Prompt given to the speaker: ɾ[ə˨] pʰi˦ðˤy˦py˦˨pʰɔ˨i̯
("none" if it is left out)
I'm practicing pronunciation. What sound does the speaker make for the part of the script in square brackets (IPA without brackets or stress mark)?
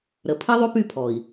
ə˨